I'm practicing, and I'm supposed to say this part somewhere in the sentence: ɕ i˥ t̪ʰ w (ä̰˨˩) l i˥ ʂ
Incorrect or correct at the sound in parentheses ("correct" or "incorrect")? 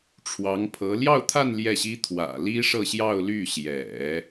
correct